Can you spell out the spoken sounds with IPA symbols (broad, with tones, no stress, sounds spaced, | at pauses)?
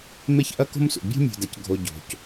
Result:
m e˥ ç ʔ ɐ˥ k o̤˥ m s ṵ˩ bʲ o̤˥ mʲ o̤˩ d ɐ˩ c ɡʱ o˩ ɟ o̤˩ c